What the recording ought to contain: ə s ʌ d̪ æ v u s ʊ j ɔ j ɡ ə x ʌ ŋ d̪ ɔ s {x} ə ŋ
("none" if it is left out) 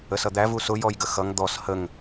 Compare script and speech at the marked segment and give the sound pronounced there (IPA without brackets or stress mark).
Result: h